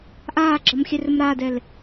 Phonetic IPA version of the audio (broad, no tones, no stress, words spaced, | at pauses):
ʔaːɡ͡ǁɒmxʲɛrɵm ɾaːdɛl